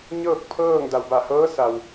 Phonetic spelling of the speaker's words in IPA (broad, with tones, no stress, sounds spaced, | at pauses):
ɲ ɤː˥˨ k̚ pʰ ɤː˥˨ ŋ d a˩ w b a˧˩ h ɤː˧˥ s a˩ w